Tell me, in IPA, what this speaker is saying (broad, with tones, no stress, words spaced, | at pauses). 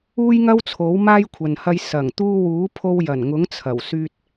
uː˥jŋɐ˥w t͡sʰo˨˥wmaː˥jkʷʰɐ˨nhɐ˧j sɐ˨˩ŋt̪uː˧wuː˨˥ pʰo˧wjɐ˨˩nŋʊ˨˥ŋ t͡sʰɐ˨˩wsyː˧t̚